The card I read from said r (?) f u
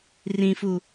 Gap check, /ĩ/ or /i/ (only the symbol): ĩ